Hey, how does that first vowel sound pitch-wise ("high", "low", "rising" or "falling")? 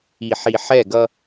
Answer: low